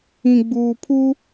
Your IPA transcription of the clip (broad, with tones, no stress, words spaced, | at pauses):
ĩ˨ɡ͡buː˨pʰu˦